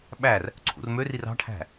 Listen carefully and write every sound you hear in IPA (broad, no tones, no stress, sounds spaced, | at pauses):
ɓ æ r | ǀʰ ṵ r m ø r i r ɑ̤ ʈʰ æ̤